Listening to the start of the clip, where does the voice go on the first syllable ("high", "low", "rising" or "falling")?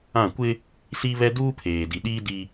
falling